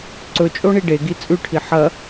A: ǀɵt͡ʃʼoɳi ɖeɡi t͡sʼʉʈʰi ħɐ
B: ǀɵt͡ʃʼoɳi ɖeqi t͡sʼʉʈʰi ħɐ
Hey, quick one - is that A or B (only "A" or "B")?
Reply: A